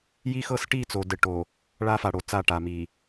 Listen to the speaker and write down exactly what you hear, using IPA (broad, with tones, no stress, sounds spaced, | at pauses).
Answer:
j i˦ x ɤ˦ s ʈ i˦˨ t͡s o˨ d ɘ˨ ʈ o˨ | ɭ a˦ f a˨ ɽ o˨˦ t͡s a˦˨ ʈ a˨ m i˨